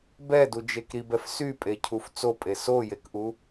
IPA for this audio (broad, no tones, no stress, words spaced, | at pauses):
bɛdud͡ʒek ɾibɛf sypʼecʰuf t͡sopʼe sojekʔu